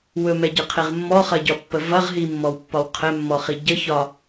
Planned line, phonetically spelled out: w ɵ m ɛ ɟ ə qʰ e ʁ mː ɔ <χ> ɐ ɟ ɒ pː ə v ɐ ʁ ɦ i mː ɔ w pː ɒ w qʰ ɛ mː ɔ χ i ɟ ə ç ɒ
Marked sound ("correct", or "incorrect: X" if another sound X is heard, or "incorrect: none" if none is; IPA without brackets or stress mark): correct